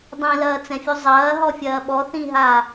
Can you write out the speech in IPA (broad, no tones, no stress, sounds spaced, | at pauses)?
dˤ ĩ l ɐː t͡s ɛ̃ fʲ u zˤ ɐː ɦ ɔ fʲ ɐː ɓ ɔ θ ĩ ɦ a